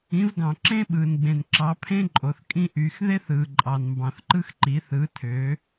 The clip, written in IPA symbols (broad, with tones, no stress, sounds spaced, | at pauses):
ĩ˨˦ v ɡ ɑ̃˨ ǁ ẽ˦ ɓ ɯː˨ n ɡ͡b ẽ˨ n ǁ ɑ˨˦ pʰ ẽ˦ ǃʼ o˨ θ kʼ ĩ˦ ʔ yː˨ x ð e˦ θ ɯː˨ ǃʼ ɑ˨ n m b ɑ̃˨ θ ǃ ɯ˦ x ǃ i˨˦ θ ɯ˨˦ tʰ ø˨˦